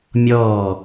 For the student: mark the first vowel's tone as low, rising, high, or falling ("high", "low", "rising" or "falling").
falling